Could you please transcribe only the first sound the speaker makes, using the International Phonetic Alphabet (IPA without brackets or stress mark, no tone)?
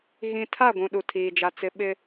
ɣ